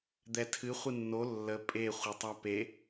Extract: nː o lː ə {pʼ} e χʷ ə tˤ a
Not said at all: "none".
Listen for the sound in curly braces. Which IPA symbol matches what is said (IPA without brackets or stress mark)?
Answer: pʼ